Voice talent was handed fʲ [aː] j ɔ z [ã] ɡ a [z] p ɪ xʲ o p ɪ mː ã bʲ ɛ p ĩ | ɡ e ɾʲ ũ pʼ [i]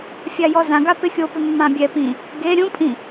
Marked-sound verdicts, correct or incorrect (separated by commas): incorrect, correct, incorrect, incorrect